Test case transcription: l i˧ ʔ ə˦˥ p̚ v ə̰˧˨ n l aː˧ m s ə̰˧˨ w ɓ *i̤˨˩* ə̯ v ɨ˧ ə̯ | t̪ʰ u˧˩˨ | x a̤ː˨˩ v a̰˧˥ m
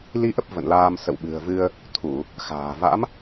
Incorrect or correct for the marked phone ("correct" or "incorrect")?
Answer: incorrect